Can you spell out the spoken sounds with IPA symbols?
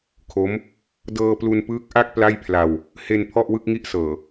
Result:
kʰo˦˥m | dɤː˧plu˧npɯː˦˥k̚ʔa˥˩k̚ pla˥˩jpʰla˧w | he˧n pʰɔ˥˩ʔwɯ˥˩k̚ŋi˥˩ʔ sɤː˨˩

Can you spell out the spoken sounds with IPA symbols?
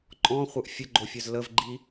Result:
ǃʼɔ̃χʷœʔ fʲəɡ͡ǃofʲœz ləvɡ͡ǃi

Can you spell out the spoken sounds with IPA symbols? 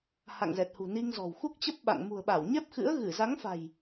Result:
ha̰˧˨ŋzɛ˨˩t̚hṳ˨˩ ni˧ŋzɔ̤˨˩w xu˦˥k̚t͡ɕə˦˥p̚ɓa̰˧˨ŋ mṳ˨˩ə̯ɓa˧˩w ɲɛ˦˥p̚xɨ̰˧˥ə̯ ɣɨ˧˩ za˨˦ŋfa̤˨˩j

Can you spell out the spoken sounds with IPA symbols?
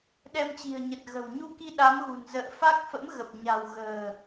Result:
ɗɛ˧mt͡ɕi̤˨˩ə̯ ɲə˨˩t̚ɣə̤˨˩wɲu˧ki˧ ɗa˨˦mɣṳ˨˩nzə̰ː˧˨ fa˦˥k̚fə̰˧˥mɣə˨˩p̚ɲa̤˨˩w ɣə̤ː˨˩

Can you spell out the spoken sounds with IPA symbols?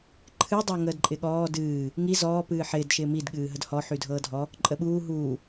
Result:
ǃʰɨdˤɤ ŋəːdǃʼɪɠɔː dɨː | ŋi zɔː pɨːħɪːd ʃɪːmidɠɨː ɦədhɔħydʱɤː dʱɔ | ǃʼəɓuː ɦuː

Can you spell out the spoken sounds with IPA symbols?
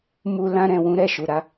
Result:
mu˧ lã˧ɾɛ̃˨wũ˧ ɾɛ˨ ʃu˨ ɾa˨˦

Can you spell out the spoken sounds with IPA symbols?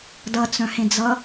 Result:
dʌt͡sœ̃hẽd͡zʌ

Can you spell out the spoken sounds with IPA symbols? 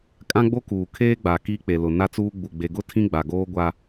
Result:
kʼã˦ɡ͡bo˦ kuː˨ kʰeː˦ɡ͡ba˨ ki˦k͡pe˨lʊ˨ na˦t͡suː˦ ɡ͡bu˨ ɡ͡be˨ɡʊ˦ tʰĩ˦ɡ͡ba˨ɡoː˦ ɡʷa˦

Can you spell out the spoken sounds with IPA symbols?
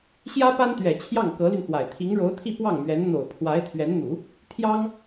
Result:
ɕjä˥pa˥nt̪ɥɛ˨˩ t͡ɕʰjɑ˥˩ŋkɤ˧˥ly˧nxwa˨˩ɪ̯ t̪ʰi˧˥ŋɻo˧˥ʊ̯t̪ʰi˥˧ pwɑ˥˩ŋmɥɛ˧˥n n̪o˨˩ʊ̯pʰwa˧˥ɪ̯t̪ʰɥɛ˧˥nn̪u˨˩˦ | t̪ʰjɑ˥ŋ

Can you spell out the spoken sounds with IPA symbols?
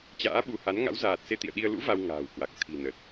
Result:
t͡ɕa̰ː˧˥ɓu˨˦ha˨˦n ŋa̰˧˥wzaː˨˩t̚ se˧t̪ḭ˧˨ə̯ɗi˧ə̯ lṵ˧˥ va˧wŋa̤ː˨˩wkwa˨˩k̚ t̪ʰi̤˨˩nə˨˩t̚

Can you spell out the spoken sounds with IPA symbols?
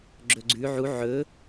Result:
ɡ͡ǁɵɡ͡ǀʉ ʕu ʕɵ

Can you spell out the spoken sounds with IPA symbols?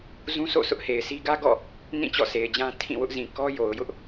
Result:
zũ˦sʰo̰˦˨ sʰʊ˦ʔhe˨ɪ̯si˦ ɡä˦ɡɔ̰˦˨ | nĩ˦˨ t͡ɕɔ̰˦˨sʰe˨ɪ̯d͡ʑã˦ tʰĩ˦˨wʊ˦ʔzĩ˨ kɔ˦ jo˨ʊ̯jʊ˦ʔ

